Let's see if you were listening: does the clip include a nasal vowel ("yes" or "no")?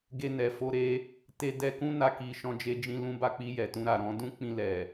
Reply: yes